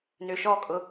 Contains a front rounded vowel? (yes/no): yes